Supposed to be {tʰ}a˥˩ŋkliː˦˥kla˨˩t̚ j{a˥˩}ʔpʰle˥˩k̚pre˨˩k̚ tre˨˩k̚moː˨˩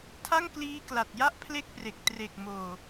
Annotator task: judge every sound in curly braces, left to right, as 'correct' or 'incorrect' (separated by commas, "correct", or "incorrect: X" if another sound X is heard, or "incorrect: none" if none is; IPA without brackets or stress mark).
correct, correct